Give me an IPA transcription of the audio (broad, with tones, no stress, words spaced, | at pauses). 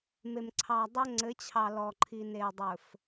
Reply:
me˨m ǀʰɑ˨dˤo˦ ŋ͡ǀɘ˨˦t͡ɕʰɑ˨ lɔ˨ǃʰi˨ne˨ dˤɵ˨f